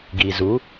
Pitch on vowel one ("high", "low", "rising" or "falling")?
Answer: low